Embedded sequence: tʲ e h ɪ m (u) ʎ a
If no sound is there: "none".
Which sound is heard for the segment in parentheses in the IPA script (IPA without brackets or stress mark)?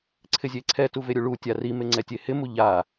u